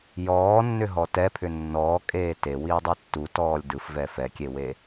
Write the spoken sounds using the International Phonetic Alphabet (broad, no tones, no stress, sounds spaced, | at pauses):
j ɔː nː ʏ ɦ ɔ t ɛ pʰ ʏ nː ɔː kʼ eː t e w iː dˤ ɛ tː u t ɔː lʲ d ɯ f v ɛ f ɛ kʲ e w e